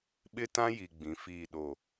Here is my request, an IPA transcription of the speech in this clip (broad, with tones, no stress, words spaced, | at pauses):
ɓɪ˦tã˦ji˨ ɡ͡bĩ˨˦fiː˦˨ɗo˦˨